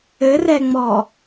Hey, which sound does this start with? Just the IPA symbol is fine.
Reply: ɘ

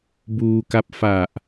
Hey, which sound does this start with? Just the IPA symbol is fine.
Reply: b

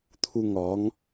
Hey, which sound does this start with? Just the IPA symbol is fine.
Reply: t̪ʰ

